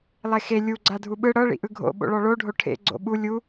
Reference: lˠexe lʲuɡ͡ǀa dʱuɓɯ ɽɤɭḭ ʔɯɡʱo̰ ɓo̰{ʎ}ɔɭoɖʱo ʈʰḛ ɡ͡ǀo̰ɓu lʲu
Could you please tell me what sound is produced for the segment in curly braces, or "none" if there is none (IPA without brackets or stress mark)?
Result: ɭ